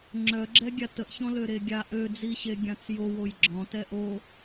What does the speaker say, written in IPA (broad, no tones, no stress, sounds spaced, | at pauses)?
ŋ͡ǁ œ ɡ͡ǁ ɛ ɡʲ a t ə ʔ ç ɔ̃ l ø ɾ e ɡʲ a ʔ ø d͡z i ɕ e ɡʲ ã t͡s j o w o j ɡ͡ǁ ɔ̃ t ɛ ʔ o